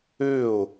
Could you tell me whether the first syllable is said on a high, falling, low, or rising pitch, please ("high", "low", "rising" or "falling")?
falling